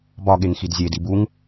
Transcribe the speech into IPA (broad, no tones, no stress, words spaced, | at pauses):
bɒɠeŋxid zʲedi buŋ